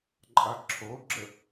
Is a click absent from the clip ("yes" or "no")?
no